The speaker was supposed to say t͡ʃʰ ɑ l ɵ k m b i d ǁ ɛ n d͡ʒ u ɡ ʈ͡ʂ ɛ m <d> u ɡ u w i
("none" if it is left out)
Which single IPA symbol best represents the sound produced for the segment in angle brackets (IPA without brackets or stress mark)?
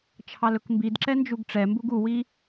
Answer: b